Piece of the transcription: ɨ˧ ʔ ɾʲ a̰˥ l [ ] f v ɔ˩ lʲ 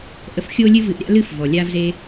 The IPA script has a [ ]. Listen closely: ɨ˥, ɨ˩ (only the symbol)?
ɨ˥